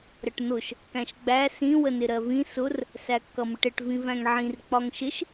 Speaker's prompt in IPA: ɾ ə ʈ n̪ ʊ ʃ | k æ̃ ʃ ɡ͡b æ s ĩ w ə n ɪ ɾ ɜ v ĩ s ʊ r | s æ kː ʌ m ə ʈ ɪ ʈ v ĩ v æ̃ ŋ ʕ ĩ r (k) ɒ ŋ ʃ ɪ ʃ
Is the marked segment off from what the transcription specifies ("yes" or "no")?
yes